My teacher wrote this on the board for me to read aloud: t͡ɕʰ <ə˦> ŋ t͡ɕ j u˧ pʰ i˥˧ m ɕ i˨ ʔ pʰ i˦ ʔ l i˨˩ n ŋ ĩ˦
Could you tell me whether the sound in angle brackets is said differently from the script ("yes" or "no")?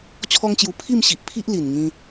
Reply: yes